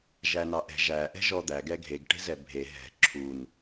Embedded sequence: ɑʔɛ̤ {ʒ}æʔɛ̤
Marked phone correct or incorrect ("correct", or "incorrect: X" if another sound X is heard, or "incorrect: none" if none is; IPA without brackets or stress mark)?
correct